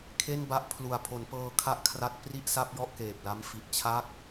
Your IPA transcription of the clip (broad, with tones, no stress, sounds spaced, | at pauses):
kʰ e˥˩ n b a˦˥ ʔ pʰ l u˨˩ a̯ pʰ o˩˦ n p ɤː˧ kʰ a˥˩ ʔ kʰ r a˦˥ t̚ p r i˥˩ ʔ s a˥˩ p̚ j ɔ˥˩ ʔ k eː˨˩ p̚ l a˦˥ m f i˨˩ ʔ t͡ɕʰ a˥˩ k̚